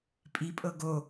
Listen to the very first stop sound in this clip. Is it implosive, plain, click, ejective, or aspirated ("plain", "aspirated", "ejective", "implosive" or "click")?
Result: ejective